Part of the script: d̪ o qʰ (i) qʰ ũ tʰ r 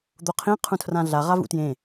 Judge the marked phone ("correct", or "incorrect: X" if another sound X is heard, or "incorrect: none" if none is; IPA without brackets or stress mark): incorrect: ĩ